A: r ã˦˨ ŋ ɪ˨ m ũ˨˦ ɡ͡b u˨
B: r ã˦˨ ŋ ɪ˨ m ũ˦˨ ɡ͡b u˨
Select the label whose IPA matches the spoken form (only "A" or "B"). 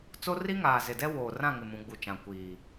A